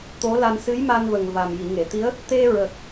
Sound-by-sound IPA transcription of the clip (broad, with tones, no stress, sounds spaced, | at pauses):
t̪ o˧˥ l a˧ n s ɨ˧˥ j m a˧ n v ə˨˩ ŋ v a˨˩ m j i˨˩˨ ŋ e˨˩˨ t̪ i˧˥ ə̯ | t̪ e˧ ɹ ə˨˩ k̚